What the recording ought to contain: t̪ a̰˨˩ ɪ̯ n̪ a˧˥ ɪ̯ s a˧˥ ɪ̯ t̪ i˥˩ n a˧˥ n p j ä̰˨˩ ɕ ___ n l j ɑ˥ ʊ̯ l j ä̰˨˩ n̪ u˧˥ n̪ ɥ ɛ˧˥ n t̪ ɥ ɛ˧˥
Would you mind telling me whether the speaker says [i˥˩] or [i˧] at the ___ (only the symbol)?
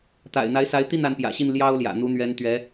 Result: i˥˩